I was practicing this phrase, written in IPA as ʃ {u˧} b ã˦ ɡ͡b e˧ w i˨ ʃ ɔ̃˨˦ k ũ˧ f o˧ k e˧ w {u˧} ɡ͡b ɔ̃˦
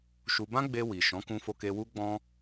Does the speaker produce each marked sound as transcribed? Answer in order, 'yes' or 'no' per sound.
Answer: yes, no

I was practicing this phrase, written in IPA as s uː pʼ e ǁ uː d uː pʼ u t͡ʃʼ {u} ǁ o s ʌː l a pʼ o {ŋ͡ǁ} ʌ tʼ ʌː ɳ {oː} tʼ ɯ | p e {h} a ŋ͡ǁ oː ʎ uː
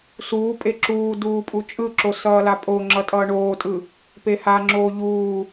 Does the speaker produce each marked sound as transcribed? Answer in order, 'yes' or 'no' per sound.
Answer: no, yes, yes, yes

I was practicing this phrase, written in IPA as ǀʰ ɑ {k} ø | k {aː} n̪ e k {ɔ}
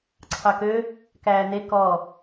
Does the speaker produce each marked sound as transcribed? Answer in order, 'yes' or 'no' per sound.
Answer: yes, no, yes

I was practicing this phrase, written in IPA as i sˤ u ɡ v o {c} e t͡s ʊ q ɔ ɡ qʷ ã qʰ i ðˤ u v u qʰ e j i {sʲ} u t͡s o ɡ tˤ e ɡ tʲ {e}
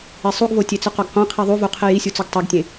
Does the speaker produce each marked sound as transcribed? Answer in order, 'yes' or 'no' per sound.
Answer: no, yes, no

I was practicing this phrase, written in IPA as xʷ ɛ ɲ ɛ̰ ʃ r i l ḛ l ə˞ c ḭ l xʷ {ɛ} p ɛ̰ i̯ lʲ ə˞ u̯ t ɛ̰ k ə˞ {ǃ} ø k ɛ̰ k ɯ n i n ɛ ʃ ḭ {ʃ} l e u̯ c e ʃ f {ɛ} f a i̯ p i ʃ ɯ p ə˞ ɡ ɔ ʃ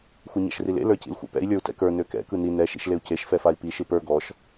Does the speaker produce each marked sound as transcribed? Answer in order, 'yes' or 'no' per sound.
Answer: no, no, yes, yes

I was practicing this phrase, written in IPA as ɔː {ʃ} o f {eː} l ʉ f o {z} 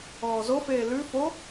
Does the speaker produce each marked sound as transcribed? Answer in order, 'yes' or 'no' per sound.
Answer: no, yes, no

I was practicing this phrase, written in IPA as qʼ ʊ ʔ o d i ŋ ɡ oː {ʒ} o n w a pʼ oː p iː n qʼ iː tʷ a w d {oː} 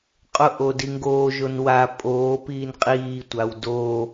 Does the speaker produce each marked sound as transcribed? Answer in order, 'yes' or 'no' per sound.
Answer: yes, yes

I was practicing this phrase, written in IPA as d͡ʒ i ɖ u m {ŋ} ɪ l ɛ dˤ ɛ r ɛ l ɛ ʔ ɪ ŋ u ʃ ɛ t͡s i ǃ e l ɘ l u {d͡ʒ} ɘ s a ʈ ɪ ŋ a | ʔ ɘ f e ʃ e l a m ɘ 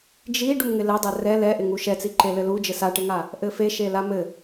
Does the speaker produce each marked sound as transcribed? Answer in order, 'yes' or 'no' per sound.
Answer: yes, yes

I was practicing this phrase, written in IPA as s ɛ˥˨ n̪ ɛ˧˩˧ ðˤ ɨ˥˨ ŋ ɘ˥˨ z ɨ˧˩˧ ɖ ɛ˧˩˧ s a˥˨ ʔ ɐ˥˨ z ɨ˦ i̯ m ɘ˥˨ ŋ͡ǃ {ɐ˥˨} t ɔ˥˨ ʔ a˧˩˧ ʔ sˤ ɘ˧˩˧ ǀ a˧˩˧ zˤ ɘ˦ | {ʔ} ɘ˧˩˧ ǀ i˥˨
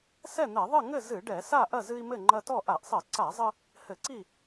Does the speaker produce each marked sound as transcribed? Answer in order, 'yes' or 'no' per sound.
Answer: no, no

